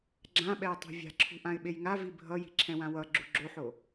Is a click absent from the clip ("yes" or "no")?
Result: no